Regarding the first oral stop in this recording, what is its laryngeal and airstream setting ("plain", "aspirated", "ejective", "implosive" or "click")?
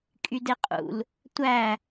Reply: ejective